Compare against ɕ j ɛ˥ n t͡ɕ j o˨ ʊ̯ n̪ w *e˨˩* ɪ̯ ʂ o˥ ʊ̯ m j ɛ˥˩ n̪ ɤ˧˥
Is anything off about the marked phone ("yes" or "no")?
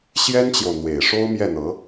no